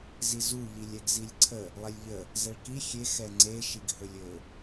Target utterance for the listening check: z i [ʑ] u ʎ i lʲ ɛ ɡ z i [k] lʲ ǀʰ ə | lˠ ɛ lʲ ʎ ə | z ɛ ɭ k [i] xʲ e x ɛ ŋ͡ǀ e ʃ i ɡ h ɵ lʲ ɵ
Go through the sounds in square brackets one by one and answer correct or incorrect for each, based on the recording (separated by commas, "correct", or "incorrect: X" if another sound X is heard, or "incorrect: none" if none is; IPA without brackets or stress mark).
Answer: incorrect: z, incorrect: none, correct